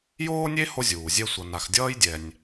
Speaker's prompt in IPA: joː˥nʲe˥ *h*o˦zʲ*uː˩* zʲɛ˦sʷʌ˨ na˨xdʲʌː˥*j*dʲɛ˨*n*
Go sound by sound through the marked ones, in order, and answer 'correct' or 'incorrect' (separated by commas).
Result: correct, correct, correct, incorrect